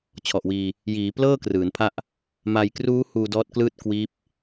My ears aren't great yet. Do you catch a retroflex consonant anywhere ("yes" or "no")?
no